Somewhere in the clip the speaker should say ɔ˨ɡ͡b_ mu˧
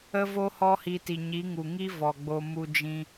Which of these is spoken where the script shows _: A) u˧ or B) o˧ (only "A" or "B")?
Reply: B